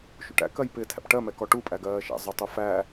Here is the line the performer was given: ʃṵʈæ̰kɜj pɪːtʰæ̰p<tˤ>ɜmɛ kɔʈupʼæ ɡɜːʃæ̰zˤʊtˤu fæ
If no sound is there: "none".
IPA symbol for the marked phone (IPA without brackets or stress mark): ʈ